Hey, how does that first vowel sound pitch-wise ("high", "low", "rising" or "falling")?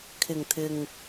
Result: low